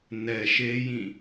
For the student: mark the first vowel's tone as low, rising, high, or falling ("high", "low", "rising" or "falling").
low